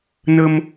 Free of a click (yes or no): yes